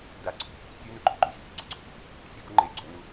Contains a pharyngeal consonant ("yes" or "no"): no